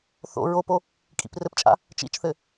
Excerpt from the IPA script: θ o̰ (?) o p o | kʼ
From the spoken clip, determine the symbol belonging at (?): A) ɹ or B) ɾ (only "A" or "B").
A